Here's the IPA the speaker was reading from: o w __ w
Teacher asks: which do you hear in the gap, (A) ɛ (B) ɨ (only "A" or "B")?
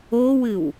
B